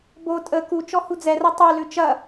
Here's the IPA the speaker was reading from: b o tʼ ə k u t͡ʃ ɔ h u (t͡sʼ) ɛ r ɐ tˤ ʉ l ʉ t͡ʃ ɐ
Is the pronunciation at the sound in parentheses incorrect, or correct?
incorrect: d͡z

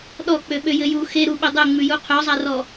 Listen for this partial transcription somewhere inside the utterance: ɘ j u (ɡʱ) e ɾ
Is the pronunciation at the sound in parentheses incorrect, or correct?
incorrect: x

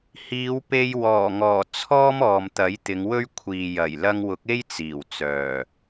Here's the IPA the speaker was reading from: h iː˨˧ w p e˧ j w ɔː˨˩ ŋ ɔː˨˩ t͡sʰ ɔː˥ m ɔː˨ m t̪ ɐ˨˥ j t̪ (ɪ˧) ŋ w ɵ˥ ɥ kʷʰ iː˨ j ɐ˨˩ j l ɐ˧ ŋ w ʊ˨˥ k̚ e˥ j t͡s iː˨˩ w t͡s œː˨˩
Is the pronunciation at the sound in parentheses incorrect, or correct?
incorrect: ɪ˨˧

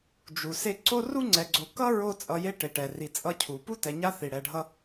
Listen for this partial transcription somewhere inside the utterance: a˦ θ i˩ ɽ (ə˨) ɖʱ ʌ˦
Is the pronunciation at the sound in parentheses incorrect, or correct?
incorrect: ɛ˨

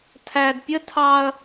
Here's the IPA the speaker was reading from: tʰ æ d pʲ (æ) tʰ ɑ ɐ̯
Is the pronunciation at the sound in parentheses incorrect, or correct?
incorrect: ə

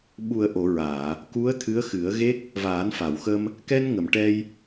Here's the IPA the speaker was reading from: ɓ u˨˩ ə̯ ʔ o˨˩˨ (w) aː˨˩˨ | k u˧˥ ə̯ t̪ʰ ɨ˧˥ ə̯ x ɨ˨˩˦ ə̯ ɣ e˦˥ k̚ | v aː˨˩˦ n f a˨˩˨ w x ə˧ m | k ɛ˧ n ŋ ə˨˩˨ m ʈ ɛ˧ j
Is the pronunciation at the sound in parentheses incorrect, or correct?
incorrect: ɹ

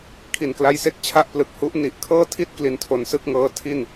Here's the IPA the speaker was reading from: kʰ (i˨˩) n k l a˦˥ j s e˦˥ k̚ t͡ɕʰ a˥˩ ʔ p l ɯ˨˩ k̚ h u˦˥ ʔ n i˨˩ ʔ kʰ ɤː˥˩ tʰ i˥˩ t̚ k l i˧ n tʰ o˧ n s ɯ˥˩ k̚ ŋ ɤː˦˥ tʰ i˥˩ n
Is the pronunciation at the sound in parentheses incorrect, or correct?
correct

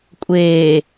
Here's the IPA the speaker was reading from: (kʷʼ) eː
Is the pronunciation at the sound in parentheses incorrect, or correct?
correct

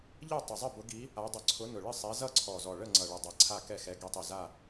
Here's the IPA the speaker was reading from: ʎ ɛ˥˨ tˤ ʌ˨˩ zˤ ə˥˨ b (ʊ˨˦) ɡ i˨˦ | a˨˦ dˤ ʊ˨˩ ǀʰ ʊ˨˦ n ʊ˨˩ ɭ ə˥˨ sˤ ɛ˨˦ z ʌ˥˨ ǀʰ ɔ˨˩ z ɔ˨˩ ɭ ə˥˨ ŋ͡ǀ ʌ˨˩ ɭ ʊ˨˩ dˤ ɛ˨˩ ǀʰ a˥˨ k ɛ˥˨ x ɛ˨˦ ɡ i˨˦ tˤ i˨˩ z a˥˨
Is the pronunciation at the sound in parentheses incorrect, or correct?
correct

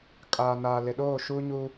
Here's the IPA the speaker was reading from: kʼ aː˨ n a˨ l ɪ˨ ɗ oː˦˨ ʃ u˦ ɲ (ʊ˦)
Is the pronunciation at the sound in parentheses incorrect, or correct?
incorrect: u˦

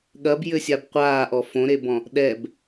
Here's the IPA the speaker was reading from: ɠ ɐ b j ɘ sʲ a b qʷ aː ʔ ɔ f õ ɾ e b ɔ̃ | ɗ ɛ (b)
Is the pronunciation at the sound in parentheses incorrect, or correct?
correct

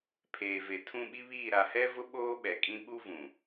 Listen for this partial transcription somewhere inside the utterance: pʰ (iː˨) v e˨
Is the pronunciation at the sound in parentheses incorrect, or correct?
incorrect: eː˨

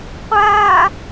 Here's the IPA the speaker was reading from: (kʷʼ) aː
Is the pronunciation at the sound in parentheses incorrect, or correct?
incorrect: qʷ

